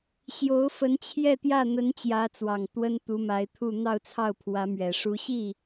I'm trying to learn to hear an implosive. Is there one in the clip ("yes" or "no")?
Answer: no